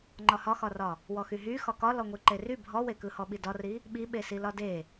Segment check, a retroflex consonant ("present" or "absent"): absent